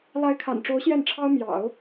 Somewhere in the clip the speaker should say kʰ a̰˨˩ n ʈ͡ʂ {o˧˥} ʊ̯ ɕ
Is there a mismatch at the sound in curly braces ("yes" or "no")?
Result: no